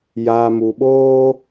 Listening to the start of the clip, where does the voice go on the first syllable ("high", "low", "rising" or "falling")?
low